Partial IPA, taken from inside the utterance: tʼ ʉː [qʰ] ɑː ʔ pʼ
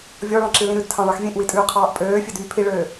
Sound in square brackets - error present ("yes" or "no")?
no